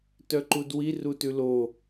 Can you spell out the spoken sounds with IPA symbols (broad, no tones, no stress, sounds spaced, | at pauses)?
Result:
t œ ǃ u d w i r u t ʉ l o